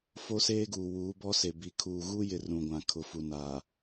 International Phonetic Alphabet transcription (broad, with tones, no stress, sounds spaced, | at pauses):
f o˦ s eː˦ ɡ uː˨ w uː˨˦ b ɔ˦ s e˨ b i˨ kʰ uː˨ ɣ u˦ j ɪ˨ r ũ˨ ɡʷ ã˨ kʰ ʊ˨ f u˨ n aː˨